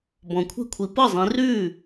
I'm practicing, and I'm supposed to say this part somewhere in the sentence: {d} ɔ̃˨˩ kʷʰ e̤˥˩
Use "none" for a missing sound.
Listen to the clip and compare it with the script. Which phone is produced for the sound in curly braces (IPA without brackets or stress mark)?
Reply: b